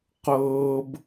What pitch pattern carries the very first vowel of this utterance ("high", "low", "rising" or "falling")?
high